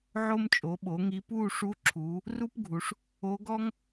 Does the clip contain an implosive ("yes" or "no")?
yes